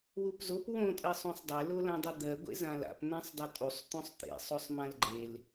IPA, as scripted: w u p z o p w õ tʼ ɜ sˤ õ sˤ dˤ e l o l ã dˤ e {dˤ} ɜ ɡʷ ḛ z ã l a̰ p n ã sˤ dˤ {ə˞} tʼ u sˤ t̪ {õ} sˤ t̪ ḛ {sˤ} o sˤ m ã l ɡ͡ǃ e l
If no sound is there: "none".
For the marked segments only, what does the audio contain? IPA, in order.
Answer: d̪, ʌ, õ, sˤ

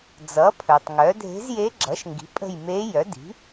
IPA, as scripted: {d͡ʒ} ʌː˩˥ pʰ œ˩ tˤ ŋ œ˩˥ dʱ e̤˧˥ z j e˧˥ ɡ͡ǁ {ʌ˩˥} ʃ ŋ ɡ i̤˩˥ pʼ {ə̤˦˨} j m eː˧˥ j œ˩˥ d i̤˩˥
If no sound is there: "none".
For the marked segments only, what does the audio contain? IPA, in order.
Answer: d͡z, ʌ˩˥, ə̤˦˨

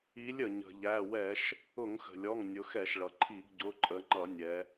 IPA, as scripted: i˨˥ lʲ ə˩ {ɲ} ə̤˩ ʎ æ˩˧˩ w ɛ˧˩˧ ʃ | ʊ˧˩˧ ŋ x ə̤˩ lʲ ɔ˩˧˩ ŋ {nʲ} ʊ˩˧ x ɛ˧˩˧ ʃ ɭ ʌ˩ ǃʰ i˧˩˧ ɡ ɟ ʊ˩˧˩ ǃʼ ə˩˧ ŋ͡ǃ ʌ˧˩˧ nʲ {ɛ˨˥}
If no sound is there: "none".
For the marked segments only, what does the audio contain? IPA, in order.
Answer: ɲ, nʲ, ɛ˩˧

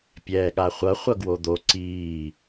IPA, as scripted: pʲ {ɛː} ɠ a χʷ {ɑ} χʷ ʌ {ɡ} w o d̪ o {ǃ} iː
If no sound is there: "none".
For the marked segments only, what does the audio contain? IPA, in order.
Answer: ɛː, ʌ, ɡ, ǀ

